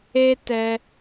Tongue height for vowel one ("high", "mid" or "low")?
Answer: mid